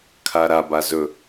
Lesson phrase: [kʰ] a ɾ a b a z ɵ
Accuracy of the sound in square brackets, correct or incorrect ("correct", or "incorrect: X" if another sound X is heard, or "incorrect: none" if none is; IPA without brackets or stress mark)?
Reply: correct